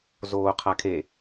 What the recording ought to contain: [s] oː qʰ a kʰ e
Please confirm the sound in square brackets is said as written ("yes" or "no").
no